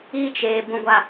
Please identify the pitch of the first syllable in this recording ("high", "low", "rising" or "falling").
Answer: high